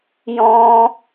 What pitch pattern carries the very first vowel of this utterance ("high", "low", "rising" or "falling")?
high